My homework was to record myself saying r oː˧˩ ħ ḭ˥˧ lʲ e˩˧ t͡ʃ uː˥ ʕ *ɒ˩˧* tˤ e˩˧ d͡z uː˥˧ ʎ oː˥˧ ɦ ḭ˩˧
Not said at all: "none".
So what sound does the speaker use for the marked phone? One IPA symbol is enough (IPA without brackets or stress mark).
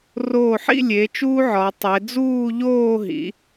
ɒ˩˧